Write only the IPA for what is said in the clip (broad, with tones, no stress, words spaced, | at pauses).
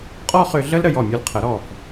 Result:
qʼɔː˥χʏː˧ɮəː˥l ɾə˥˧jɔ˧˩mʲə˞˧l qʰə˩˧ɾɔ˧˩f